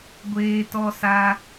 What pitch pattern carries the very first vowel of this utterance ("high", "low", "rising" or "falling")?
high